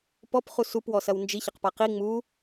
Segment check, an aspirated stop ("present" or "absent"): absent